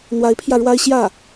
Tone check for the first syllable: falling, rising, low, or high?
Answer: rising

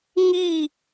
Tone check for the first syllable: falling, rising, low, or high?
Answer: falling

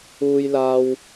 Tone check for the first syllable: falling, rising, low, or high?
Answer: high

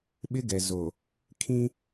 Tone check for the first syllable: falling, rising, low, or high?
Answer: high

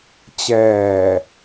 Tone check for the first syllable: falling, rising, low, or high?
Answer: low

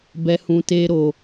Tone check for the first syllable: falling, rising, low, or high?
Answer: low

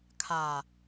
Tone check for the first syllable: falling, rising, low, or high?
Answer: low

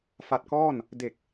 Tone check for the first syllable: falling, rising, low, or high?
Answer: low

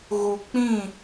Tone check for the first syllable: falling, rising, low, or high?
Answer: low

